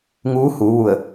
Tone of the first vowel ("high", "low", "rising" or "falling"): rising